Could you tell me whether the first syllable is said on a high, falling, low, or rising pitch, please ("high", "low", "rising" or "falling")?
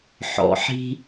low